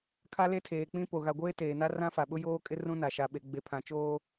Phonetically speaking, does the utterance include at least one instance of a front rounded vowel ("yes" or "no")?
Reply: no